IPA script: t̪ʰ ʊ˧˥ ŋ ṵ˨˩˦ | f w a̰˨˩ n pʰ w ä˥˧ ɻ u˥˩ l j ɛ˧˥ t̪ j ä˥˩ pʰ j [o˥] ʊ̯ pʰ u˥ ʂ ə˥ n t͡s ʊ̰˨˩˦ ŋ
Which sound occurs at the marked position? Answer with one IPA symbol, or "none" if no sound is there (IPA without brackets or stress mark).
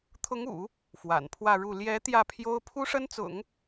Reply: o˥